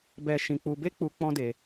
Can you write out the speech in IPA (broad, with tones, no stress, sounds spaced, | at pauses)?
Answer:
b ɛ˦ ʃ ĩ˧ k͡p u˧ b e˦ k͡p u˦ k͡p ɔ̃˦ d e˧